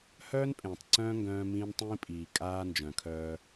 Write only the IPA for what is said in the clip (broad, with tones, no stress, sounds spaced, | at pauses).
h œː˦ n pʼ ẽː˨ tˤ ǀ œ̃ː˦ ŋ ɡ œ̃ː˦ m ĩː˦ n tˤ ĩː˦ pʼ iː˨ kʼ aː˦ n d͡ʒ œ̃˨ kʰ œː˦